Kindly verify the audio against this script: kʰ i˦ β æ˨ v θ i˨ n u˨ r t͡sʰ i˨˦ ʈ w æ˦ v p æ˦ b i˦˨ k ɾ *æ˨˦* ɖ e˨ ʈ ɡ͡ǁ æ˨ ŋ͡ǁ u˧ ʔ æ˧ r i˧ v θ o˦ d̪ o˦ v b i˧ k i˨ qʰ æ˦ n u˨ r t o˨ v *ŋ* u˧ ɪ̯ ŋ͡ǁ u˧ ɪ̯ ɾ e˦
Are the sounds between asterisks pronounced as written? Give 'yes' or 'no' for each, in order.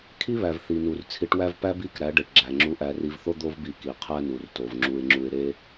yes, no

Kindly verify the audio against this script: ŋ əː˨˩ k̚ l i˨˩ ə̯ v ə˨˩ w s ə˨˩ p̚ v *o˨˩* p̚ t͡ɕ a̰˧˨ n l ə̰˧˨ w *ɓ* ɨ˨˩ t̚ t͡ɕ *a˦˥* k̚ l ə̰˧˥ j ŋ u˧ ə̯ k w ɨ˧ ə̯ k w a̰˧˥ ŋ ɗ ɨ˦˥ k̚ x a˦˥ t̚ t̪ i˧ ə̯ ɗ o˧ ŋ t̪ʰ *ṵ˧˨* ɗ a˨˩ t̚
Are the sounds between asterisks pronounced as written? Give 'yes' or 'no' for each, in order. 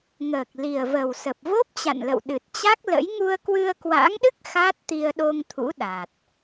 no, no, yes, no

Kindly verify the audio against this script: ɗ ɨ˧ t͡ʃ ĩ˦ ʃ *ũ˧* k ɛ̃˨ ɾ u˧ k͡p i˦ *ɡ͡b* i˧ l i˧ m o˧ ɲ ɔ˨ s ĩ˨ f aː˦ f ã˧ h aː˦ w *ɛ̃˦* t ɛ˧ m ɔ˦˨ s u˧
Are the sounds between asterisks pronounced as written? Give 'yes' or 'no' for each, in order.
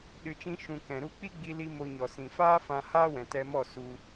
yes, yes, no

